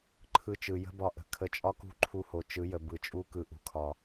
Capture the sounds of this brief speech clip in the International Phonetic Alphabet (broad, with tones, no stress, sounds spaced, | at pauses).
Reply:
ǃʰ ɯ˧ t͡ʃ ɯ˨ j ə̤˦ b ɒ˧ ʔ ə̤˨ kʰ ə˧ t͡ʃʼ ɒ˦ k ṳ˦ ǃʰ u˧ h o˨ t͡ʃ ɯ˨˦ j ə˨ b ɯ˨ t͡ʃʼ u˦ k ɯ˨ ʔ ṳ˨ kʰ ɒ˨